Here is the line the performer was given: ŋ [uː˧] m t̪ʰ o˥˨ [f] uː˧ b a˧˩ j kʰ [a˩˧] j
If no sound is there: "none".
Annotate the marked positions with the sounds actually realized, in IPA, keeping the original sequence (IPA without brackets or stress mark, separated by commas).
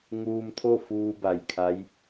uː˧, f, a˧˥